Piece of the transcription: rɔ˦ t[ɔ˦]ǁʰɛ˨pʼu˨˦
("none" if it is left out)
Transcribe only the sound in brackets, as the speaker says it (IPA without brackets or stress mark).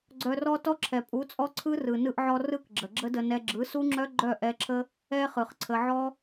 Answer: ɔ˦